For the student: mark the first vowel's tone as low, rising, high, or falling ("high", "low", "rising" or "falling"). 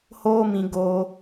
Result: high